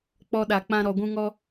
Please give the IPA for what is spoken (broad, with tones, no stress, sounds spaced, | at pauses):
k͡p ɔ˧ ɗ a˨ k͡p ã˧ ɾ ɔ˨ ɡʷ ũ˧ ŋ ɔ˧